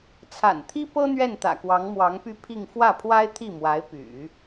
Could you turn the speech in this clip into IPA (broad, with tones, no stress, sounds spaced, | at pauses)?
t͡sʰ a̰˨˩ n t̪ʰ i˥ p ɤ˥ n̪ ɥ ɛ˥˩ n t̪ ä̰˨˩ k w ɑ˧˥ ŋ m w ɑ˧˥ ŋ p y˥˧ pʰ i˥˧ ŋ f w ä˥˩ pʰ w a˥ ɪ̯ t̪ʰ i˥˩ m w a˧˥ ɪ̯ p y̰˨˩˦